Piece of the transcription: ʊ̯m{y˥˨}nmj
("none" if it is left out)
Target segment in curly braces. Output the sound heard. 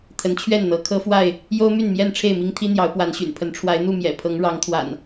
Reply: y˥˨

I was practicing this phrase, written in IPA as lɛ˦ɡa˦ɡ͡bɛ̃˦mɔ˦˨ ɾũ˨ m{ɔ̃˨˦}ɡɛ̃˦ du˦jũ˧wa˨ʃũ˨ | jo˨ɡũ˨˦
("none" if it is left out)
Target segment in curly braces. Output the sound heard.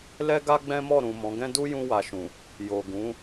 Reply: ɔ̃˨˦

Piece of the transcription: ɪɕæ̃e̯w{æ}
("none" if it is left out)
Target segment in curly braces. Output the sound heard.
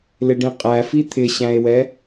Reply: ɛ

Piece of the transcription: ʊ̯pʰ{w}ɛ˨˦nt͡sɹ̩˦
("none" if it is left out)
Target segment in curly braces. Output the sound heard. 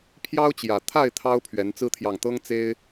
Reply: ɥ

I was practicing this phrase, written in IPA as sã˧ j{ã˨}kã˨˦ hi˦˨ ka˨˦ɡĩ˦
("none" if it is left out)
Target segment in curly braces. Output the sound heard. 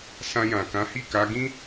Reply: ã˨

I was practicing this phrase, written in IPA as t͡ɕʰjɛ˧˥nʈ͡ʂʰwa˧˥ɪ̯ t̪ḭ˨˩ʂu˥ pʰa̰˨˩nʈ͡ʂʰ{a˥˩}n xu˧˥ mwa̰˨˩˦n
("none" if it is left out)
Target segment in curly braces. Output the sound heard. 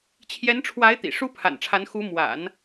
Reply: a˧˥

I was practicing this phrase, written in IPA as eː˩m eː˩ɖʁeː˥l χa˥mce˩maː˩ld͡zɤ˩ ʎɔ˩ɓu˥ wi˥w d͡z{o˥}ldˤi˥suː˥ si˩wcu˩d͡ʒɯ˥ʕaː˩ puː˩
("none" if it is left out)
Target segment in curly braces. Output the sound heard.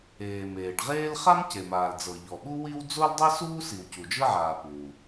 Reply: o˥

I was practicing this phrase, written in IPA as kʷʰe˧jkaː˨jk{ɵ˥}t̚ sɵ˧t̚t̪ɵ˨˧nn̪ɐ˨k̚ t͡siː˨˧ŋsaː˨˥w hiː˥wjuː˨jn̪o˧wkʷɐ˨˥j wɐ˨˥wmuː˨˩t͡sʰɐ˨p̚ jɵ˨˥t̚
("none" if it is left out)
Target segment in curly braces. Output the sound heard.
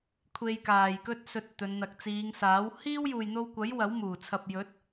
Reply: ɵ˥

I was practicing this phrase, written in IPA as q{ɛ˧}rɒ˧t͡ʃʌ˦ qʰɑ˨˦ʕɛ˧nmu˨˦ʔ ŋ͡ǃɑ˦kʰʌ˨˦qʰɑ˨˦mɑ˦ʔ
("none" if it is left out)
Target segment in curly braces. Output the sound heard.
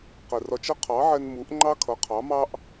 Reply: ɛ˨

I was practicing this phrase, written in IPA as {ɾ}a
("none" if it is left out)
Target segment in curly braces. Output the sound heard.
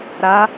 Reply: ɾ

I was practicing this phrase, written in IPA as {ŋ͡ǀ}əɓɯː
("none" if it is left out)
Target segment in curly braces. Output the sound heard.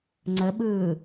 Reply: ŋ͡ǀ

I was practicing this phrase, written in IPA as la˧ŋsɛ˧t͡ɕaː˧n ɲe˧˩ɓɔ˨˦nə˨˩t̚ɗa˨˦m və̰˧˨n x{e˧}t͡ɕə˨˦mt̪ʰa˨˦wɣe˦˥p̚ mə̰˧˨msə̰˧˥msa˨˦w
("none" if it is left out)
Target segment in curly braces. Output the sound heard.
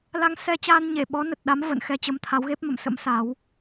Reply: ɛ˧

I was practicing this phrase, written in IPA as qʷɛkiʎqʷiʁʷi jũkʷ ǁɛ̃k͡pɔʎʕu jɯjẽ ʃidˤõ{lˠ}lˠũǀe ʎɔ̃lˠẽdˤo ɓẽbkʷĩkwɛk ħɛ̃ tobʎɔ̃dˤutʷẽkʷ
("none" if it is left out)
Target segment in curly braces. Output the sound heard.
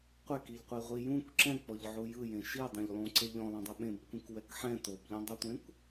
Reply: ʎ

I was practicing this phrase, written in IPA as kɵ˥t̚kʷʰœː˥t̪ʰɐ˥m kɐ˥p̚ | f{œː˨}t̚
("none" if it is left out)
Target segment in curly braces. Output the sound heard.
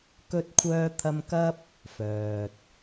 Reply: œː˨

